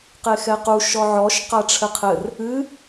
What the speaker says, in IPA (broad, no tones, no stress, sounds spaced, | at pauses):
q e x ɛ q u ʃ ɔ ʕ ɔ ʃ q a ʈ͡ʂʰ ɘ qʰ ɘ r | ɨ